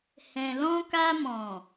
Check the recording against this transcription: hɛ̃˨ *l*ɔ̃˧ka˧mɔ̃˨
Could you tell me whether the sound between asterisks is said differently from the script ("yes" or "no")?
no